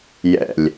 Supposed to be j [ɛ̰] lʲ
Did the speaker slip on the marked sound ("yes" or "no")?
no